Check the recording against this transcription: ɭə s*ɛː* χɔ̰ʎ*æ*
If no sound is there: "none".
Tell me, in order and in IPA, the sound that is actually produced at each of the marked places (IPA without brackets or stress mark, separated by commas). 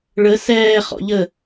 ɛː, ə